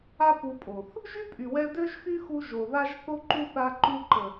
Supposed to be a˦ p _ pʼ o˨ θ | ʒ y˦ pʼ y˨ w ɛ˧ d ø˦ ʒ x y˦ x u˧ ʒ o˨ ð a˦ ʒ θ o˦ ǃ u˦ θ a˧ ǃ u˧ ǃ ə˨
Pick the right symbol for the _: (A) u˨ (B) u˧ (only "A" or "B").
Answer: B